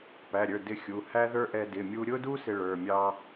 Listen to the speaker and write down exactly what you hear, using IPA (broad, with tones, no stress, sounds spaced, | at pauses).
p æ˩˧˩ ɾʲ ə˞˩˧˩ d ɪ˥ xʲ u˩˧˩ h æ˥ ð ə˞˥ ʔ ɛ˥ d ɪ˩˧˩ mʲ u˥ ɾʲ ʊ˥ d u˥ s ɪ˥ ɭ ə˞˩˧˩ mʲ ɑ˥